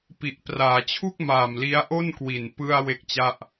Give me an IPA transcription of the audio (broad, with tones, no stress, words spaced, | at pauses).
pi˨˩ʔpraː˩˦t͡ɕʰu˥˩k̚maː˨˩m li˦˥a̯ʔo˥˩n kwi˨˩npɯ˧a̯ we˦˥k̚t͡ɕa˥˩ʔ